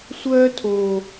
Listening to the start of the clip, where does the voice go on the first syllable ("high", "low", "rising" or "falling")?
high